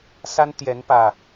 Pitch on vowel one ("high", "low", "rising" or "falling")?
high